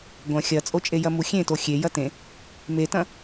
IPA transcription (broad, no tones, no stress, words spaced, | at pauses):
ɡʷɐ̃ xʲɐt͡sʼot͡ʃʼejɐ muxʲẽto xʲe jɐtẽ | metɐ̃